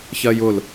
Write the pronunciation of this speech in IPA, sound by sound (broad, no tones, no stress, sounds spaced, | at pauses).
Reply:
ç ɜ j ʊ l